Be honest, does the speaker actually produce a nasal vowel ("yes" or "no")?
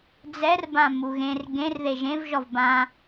yes